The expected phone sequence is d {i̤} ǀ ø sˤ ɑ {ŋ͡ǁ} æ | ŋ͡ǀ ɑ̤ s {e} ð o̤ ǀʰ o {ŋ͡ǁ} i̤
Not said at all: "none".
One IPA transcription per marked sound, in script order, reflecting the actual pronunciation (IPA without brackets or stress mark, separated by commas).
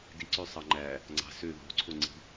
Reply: i, ŋ͡ǃ, ø, ŋ͡ǀ